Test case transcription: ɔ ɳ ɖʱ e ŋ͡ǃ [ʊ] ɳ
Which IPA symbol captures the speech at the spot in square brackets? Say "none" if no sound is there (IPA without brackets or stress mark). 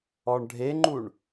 u